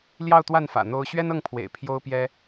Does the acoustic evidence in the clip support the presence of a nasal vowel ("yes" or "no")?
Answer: no